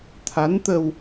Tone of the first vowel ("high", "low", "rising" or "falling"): rising